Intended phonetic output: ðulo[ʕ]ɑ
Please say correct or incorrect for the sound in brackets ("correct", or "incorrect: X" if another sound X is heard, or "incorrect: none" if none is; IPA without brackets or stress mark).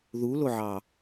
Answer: correct